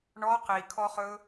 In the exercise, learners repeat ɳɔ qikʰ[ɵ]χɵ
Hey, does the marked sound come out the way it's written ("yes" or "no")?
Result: no